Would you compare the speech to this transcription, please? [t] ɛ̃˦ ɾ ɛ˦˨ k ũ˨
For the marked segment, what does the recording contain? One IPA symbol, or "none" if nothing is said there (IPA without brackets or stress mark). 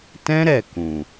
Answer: t